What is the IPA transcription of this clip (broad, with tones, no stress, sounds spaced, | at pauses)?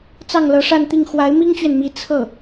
t͡s ɑ˥˩ ŋ l ɤ˧˥ ʂ a˥˧ n t̪ i˥˩ ŋ x w a˧˥ ɪ̯ m i˥ ŋ t͡ɕ ɥ ɛ˨ n m i˧˥ t͡sʰ ɤ˥˩